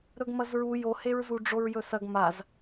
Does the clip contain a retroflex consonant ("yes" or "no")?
yes